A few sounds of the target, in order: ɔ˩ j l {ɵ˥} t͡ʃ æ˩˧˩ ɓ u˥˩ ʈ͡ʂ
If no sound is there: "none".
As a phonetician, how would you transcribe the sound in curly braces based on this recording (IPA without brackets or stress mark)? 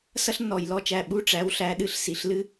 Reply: ɔ˥